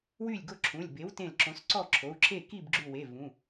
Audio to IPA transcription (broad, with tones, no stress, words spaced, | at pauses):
wy˥˨lʲɡo˥˨ǁʰũ˩˧˩lʲ be˨˥wtẽ˧˩l ǁõ˨˥sǀɔ˥˨ǁʰo˩˧˩u̯ǁʰe˥˨ ki˥˨bɡ͡ǁu˧˩we˩˧˩ vũ˩˧˩